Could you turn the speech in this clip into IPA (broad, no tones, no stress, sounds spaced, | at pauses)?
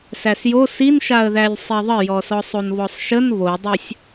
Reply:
s æ s j o s i n ʃ a ə̯ ð æ lʲ sˤ i ðˤ ə j ɔ s ɔ sˤ o n β ɔ sˤ ʃ ə n β o dˤ ə sʲ